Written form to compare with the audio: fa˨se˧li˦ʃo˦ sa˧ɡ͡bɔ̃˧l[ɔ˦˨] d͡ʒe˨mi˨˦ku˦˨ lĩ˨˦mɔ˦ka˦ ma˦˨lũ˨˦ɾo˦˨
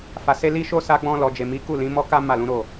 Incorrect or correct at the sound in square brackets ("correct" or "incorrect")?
incorrect